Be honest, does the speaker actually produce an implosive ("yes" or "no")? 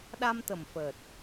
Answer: yes